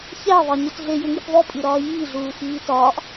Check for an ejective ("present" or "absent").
present